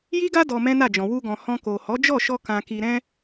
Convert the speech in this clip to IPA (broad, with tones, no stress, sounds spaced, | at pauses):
j i˦ ɡ a˦ d ɔ˧ m ɛ̃˦ n a˦˨ d͡ʒ ɔ̃˨ w u˧ ɡ ɔ̃˨ h ɔ̃˧ k o˨ h ɔ˨˦ d͡ʒ ɔ˦˨ ʃ ɔ˧ k ã˨ k i˨ ɾ ɛ̃˧